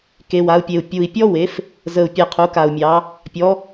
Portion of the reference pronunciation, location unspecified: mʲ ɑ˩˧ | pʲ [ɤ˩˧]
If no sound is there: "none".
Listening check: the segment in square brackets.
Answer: ɔ˩˧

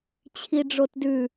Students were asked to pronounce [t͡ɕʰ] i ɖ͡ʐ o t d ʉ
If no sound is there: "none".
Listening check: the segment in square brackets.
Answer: t͡ɕʰ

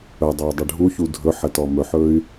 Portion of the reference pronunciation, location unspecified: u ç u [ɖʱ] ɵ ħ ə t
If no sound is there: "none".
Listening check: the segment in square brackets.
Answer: dʱ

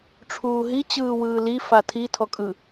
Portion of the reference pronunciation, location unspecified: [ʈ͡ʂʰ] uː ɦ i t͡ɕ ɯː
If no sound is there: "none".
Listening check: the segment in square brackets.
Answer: ʈ͡ʂʰ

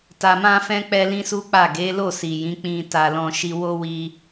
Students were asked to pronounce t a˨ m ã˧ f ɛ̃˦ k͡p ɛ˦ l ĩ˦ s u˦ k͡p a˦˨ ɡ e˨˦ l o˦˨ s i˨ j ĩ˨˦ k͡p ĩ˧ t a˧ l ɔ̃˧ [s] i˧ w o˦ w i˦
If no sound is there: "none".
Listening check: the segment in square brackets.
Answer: ʃ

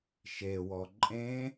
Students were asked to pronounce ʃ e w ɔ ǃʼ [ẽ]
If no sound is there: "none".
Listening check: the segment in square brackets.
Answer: ẽ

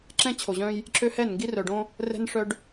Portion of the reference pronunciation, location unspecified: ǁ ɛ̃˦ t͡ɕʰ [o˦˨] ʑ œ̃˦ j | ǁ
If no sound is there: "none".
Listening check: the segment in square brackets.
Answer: o˨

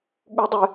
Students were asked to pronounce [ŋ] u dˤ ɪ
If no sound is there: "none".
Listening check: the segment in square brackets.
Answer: ɠ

